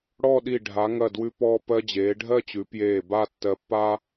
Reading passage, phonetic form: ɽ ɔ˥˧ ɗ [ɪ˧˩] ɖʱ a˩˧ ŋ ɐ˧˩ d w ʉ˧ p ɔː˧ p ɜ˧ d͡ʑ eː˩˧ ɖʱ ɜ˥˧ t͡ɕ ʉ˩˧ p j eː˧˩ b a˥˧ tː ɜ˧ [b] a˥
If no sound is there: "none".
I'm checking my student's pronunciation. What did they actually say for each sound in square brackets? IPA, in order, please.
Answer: i˧˩, pː

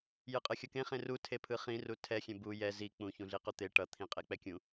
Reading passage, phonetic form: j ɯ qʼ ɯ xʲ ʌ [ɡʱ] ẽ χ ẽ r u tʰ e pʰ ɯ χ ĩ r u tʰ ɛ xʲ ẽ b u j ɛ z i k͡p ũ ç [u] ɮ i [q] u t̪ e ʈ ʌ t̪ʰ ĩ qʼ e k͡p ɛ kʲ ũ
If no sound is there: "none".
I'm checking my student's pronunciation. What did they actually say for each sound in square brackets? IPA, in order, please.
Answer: k, ũ, q

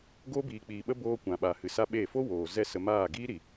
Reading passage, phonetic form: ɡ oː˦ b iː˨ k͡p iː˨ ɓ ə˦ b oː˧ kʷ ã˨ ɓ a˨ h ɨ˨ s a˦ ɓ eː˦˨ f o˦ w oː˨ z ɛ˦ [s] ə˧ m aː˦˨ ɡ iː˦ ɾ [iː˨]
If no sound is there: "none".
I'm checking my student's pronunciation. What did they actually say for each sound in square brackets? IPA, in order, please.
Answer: s, i˨

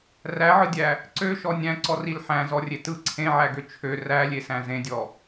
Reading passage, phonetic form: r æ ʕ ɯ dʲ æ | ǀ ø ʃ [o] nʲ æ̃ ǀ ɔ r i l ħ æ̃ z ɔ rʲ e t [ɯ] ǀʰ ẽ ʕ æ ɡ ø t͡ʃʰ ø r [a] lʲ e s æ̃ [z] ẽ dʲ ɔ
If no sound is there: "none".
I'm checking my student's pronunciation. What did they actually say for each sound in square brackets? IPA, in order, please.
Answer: ɔ, ɯ, æ, z

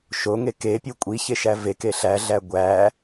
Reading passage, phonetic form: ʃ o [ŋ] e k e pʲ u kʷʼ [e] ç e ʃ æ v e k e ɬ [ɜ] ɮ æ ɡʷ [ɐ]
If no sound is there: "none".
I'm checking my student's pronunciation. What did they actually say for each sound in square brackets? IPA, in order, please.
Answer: ŋ, i, æ, æ

